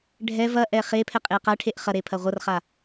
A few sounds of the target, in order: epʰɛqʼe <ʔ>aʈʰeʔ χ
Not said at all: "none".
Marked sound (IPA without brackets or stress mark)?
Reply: q